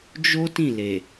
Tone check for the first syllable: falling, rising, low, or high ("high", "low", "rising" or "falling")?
high